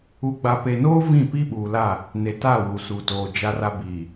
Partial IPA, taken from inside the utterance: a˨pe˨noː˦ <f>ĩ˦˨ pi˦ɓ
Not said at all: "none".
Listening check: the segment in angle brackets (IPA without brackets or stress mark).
v